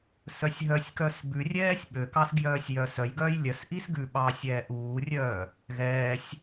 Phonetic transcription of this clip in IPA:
sœsʲɦœsʲkœs bʉrʲɛːsʲ ɓøkɑs ɡjœːsʲjœːsœjɡœːj lʲœsʔis ɡʉɓɑːsʲ ɛːʔuːrʲœː | ɣɛːsʲ

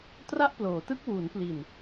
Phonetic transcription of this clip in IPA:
tra˥˩ʔploː˩˦tɯ˥˩k̚ wuː˩˦npli˨˩n

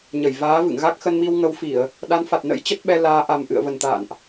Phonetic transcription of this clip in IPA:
ɲə˧˩jvaː˨˦vɨ̰˧˨ŋɣa˦˥k̚ xə˧nmi˧wŋə˨˦wfi˧˩˨ə̯ | ɗa˨˦nfa˨˩t̚nə̰˧˥j t͡ɕə˦˥t̚ɓɛ˧laː˨˦ ʔa˨˩m ʔɨ̰˧˨ə̯və˨˩nt̪a̰ː˧˨nʔ

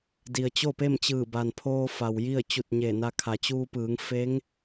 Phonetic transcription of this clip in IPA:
di˩ə̯t͡ɕo˥˨pe˥˨mt͡ɕɯː˧˩ ba˩npʰoː˧ fa˩wji˥˨ə̯ t͡ɕu˧˩t̚ ɲe˧˩na˧kʰa˩˧ t͡ɕuː˧pɯː˩˧ŋ fe˧˥ŋ

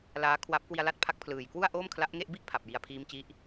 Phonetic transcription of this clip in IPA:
laː˦˥kʰwa˦˥p̚ kwi˧a̯la˥˩t̚pʰa˦˥k̚pʰlɯː˨˩j kwu˥˩a̯ʔoː˥˩mkʰla˦˥ʔŋe˥˩ʔ bi˥˩ʔ pʰa˨˩p̚ji˨˩a̯ pʰiː˦˥mt͡ɕi˦˥ʔ

